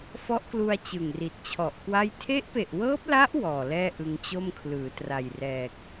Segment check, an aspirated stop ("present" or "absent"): present